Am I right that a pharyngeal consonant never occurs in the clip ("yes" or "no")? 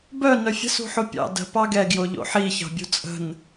no